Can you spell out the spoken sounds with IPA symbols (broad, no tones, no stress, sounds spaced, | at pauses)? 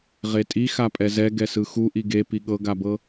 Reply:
ʁ e tʼ i x a pʼ ɛ z ɛ ɡ ɛ s ɯ x u ʔ i ɡ e p i ɠ ɤ ɡ a b ɤ